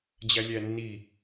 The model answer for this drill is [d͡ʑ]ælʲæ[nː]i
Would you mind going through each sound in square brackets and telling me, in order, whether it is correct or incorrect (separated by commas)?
correct, correct